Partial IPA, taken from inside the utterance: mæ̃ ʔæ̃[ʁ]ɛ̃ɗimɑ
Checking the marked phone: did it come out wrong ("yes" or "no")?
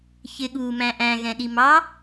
yes